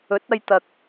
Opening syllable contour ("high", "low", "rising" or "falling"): rising